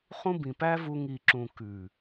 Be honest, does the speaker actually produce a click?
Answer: yes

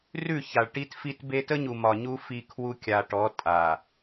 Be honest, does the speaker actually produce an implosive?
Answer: no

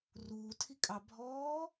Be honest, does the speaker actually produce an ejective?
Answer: yes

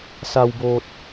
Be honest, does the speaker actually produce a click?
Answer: no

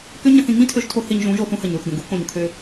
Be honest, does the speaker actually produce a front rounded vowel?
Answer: yes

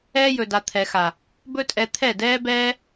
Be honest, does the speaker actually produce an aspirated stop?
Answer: yes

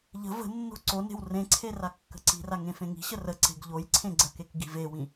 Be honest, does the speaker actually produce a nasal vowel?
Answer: yes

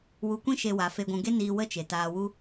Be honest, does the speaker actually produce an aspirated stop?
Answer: no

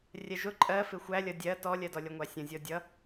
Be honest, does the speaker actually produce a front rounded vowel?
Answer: no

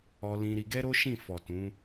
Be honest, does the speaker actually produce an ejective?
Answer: no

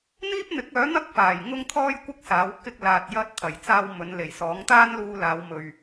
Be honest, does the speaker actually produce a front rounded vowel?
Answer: yes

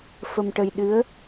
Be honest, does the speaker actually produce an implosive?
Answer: yes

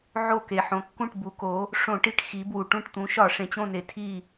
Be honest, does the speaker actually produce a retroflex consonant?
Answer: yes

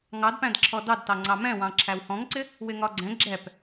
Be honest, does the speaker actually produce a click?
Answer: yes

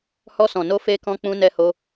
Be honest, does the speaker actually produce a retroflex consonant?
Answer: no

